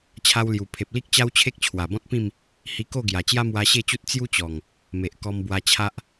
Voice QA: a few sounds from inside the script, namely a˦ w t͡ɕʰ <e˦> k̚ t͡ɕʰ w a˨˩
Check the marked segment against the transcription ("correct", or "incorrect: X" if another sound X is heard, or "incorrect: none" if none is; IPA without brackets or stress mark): correct